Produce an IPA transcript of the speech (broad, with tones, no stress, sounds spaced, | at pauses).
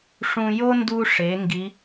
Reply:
ʂ ũ˧ j o˥ n d u˧ ʂ e˩˧ ŋ ɡ i˧˥